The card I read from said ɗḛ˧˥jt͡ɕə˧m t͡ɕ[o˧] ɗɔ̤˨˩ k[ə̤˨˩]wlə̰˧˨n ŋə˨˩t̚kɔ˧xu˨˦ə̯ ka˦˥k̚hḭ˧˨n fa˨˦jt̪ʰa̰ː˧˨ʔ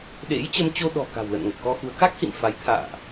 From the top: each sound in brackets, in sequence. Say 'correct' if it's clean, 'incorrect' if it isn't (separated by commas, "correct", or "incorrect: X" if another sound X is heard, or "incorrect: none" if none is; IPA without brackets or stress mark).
correct, incorrect: a̤˨˩